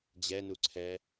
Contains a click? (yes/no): yes